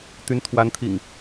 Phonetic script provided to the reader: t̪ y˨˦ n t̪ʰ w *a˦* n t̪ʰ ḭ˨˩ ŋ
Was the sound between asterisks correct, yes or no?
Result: no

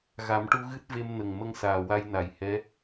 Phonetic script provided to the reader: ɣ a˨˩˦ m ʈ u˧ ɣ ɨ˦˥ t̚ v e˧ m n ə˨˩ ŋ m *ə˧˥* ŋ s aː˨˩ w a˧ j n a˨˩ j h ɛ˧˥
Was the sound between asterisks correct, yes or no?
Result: no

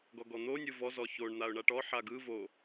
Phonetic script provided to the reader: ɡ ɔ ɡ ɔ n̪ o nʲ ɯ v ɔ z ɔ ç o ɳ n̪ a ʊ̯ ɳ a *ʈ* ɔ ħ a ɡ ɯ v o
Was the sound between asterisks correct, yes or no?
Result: yes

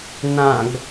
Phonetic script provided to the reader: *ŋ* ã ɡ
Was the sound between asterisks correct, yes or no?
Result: no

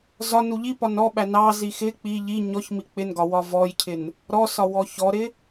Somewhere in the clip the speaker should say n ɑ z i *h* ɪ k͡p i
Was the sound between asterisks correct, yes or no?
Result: no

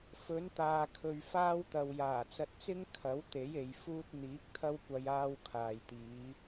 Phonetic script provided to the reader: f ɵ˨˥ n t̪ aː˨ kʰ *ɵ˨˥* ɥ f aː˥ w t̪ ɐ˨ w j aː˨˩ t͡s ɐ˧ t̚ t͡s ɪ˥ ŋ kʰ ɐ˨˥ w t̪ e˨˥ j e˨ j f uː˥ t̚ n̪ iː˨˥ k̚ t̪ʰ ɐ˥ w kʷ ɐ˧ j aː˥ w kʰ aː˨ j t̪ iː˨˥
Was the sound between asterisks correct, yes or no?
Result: no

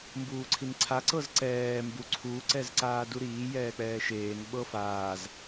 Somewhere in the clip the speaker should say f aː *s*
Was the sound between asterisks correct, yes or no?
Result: no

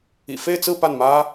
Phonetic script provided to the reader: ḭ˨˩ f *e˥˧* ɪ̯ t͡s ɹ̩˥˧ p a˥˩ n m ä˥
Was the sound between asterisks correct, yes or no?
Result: yes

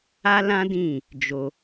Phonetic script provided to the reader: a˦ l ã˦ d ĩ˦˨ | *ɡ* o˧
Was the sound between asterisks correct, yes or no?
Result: no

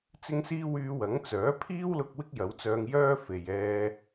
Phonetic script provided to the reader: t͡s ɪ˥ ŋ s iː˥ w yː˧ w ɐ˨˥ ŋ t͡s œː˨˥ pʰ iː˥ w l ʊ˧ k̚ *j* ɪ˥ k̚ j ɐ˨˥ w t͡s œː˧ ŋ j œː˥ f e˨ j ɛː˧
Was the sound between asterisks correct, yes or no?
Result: no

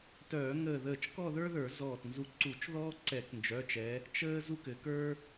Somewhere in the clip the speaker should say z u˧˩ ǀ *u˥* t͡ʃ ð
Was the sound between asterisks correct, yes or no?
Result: no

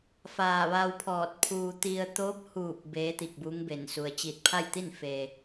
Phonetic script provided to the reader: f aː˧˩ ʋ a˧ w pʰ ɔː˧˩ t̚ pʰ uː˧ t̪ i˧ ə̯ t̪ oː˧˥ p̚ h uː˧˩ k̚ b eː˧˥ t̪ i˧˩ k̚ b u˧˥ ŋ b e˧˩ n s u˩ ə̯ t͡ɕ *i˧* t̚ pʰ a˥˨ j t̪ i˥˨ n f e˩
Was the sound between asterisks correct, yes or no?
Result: no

